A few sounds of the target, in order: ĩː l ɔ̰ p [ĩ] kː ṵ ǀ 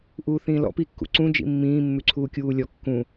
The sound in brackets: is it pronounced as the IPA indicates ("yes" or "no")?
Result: no